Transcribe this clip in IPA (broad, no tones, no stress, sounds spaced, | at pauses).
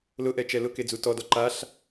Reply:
l ʊ ʔ ɛ t͡ʃ ɛ l ʊ k e d͡z u t ɔ d ɔ ǃ a ɬ